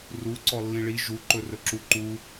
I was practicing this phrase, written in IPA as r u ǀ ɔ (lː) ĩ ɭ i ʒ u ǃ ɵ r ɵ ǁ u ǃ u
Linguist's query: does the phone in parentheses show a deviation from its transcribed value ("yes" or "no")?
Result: no